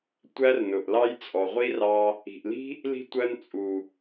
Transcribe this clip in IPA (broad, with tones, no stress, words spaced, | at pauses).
tʷæ˦rnʊ˨ʔlɑ˦j t͡sʼɔ˨ʁʷi˦rɑ˧ | i̤˨ʔli̤˦ | li̤˦tʷɜ˧nt͡sʼu˨